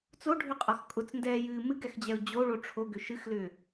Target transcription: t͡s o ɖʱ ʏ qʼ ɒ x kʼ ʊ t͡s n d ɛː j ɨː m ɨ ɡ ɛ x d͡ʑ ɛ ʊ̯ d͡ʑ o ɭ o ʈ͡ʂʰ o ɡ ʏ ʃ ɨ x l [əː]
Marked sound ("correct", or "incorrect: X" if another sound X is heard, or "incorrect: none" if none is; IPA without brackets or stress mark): incorrect: ʏː